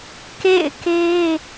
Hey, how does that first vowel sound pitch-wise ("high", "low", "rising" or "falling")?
falling